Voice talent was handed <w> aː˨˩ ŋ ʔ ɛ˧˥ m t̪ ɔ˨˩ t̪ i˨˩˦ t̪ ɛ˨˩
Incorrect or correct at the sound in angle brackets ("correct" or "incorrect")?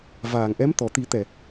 incorrect